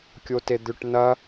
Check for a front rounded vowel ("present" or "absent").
present